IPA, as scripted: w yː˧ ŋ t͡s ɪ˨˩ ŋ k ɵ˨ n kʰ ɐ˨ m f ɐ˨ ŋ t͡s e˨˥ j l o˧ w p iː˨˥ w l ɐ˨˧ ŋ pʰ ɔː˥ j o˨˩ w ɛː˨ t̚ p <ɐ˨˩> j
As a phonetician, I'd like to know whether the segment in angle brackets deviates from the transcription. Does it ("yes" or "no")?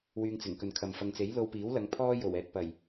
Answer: no